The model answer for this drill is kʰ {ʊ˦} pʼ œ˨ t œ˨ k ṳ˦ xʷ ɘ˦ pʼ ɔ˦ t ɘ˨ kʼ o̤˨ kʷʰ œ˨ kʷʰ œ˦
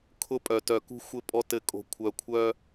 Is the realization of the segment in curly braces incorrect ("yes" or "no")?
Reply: no